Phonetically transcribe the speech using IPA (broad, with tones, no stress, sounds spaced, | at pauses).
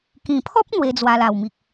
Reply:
k ĩ˨˩ pʰ ɔ˦ p̚ n̪ w e˧ d͡z w a˧ l a˨˩ w m i˨ k̚